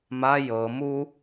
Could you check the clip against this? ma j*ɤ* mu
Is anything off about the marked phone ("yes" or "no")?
no